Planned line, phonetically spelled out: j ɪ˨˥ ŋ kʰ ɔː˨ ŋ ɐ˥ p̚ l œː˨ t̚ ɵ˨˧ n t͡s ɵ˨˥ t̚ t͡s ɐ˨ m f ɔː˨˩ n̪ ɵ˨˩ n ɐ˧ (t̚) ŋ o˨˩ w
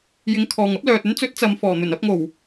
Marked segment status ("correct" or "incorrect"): incorrect